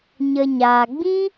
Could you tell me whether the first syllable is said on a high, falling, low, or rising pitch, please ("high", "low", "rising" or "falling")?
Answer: low